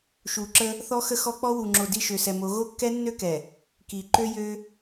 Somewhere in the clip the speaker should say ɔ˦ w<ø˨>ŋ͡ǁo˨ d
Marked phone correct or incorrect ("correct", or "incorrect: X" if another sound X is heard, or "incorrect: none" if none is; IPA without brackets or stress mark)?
incorrect: u˨